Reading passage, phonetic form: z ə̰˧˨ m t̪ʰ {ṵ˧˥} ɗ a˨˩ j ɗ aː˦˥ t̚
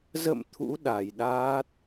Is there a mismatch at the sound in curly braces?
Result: no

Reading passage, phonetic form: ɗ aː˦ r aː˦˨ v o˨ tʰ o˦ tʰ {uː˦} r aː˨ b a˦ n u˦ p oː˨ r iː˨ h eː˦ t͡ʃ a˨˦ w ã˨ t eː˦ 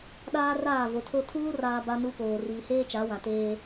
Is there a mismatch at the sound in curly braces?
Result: no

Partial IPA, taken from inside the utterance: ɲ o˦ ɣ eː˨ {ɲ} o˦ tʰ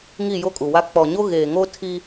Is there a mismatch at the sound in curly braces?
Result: yes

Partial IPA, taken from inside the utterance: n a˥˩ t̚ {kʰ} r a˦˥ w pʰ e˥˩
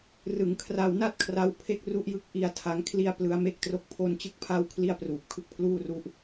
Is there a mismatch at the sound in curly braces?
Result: no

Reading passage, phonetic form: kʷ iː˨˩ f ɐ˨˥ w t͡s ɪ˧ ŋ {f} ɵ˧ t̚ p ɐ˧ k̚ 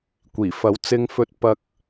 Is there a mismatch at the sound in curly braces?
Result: no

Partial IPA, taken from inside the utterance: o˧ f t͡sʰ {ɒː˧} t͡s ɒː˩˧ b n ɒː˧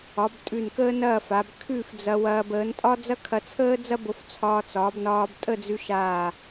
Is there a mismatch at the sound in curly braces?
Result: no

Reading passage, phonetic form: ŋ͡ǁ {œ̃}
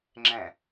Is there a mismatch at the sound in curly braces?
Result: yes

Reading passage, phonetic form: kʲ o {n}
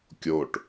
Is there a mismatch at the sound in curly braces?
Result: yes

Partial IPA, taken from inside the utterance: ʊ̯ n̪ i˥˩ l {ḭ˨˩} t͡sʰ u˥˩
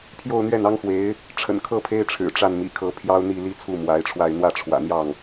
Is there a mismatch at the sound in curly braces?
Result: yes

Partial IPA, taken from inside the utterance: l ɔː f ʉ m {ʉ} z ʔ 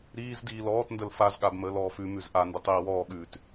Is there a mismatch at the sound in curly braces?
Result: no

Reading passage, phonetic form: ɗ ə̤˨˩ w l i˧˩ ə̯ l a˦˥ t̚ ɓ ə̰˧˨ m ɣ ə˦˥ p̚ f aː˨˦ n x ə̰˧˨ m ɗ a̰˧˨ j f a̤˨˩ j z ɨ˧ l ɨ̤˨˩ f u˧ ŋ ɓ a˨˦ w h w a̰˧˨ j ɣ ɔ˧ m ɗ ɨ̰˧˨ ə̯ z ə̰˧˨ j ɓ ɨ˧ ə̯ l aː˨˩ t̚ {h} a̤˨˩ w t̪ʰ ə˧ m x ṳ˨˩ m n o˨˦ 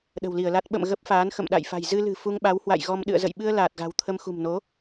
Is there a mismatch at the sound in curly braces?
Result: yes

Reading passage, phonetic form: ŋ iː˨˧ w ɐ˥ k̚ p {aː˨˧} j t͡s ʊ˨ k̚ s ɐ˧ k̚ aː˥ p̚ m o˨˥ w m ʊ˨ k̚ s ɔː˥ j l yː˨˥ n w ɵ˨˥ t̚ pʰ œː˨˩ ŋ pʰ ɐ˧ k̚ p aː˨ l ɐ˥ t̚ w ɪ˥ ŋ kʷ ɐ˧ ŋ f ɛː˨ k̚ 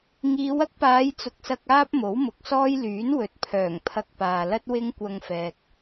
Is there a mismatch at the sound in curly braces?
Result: no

